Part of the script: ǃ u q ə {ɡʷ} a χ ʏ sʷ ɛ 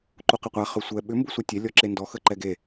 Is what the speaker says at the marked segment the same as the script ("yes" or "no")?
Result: no